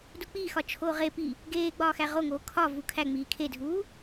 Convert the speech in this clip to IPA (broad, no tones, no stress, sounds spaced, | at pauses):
d u k͡p iː x ɒ t͡ʃʰ oː ʁ e p i | ɡ eː ɡ͡b ɒː x æ ʁ o ŋ oː kʰ ɒ v u kʰ æ ŋ͡m iː kʰ e dʱ uː